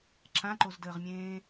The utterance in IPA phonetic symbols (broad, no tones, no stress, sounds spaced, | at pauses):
ǁ ã ǃ o z d əː ʁ mʲ ẽː